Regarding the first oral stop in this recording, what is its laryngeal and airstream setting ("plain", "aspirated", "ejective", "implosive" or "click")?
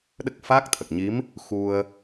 implosive